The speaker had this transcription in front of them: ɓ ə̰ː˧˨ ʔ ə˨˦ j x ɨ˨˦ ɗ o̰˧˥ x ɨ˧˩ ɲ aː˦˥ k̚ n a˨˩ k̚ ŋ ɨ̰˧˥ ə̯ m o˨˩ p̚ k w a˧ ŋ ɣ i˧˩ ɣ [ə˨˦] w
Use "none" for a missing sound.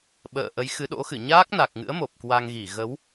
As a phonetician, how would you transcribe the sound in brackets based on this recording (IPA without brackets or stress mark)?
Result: ə˨˦